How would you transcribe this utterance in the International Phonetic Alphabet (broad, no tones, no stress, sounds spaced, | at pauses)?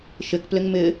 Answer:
ʃ ɪ k p l ɪ ŋ m ɪ